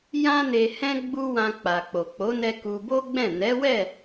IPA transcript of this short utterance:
j ã˦ n e˧ h ɛ̃˦ ɡ͡b u˧ w ã˧ k͡p a˨ k͡p o˨ k͡p o˨˦ n ɛ˧ k u˧ b o˦ ɡ͡b ɛ̃˦˨ n ɛ˨˦ w ɛ˦˨

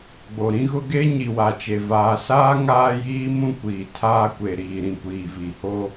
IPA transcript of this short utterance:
ɡ͡b o˨ ɾ ĩ˦ ɣ ʊ˦ ɡ e˦ ɲ i˨ w a˨ t͡ʃ e˨ v aː˨ s aː˦ ŋ aː˦ j iː˦ m ũ˦ kʷ iː˨ tʰ aː˦ kʷ e˨ ɾ iː˨ ɾ ĩ˨ kʷ iː˨ v i˨ h o˦

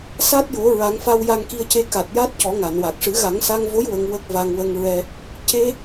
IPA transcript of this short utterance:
s a˦˥ t̚ j o˨˩˦ ɹ a˨˩˦ ŋ f a˧ w j a˧ ŋ k i˧ ə̯ c e˧ k a˨˩ t̚ j a˦˥ t̚ c ɔ˨˩˦ ŋ a˨˩˨ n w a˨˩ k̚ ʂ ɨ˨˩˦ ɣ a˨˩˦ ŋ s a˧ ŋ v o˧˥ j w ə˧ ŋ w ə˦˥ k̚ v a˧ ŋ w ə˧ ŋ ɹ ɛ˧ | c e˧

